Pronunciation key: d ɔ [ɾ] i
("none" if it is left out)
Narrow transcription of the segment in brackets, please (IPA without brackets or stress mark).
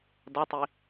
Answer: tˤ